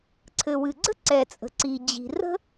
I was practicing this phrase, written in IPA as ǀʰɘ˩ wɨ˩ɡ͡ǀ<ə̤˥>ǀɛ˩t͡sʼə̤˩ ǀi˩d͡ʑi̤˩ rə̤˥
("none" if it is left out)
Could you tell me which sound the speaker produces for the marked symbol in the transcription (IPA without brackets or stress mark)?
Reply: ə̤˥